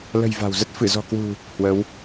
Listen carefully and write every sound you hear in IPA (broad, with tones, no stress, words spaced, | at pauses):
lə̤˨˩j va̤˨˩wzə˦˥t̚ fɨ˧˩zɔ̤˨˩kwṳ˨˩ | hwə˨˦w